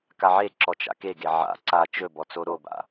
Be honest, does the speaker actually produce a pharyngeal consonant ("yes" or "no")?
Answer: yes